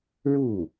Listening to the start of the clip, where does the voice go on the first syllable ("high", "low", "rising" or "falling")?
falling